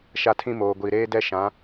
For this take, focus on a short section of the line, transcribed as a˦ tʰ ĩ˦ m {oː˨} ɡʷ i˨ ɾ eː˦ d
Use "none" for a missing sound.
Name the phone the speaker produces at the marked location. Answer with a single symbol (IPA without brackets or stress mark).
oː˨